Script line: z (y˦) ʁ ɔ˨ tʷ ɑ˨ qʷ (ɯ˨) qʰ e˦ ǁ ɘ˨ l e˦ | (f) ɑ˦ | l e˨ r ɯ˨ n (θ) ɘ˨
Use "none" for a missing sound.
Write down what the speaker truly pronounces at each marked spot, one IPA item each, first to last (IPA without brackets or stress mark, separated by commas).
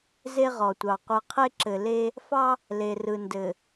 e˦, ɯ˨, f, d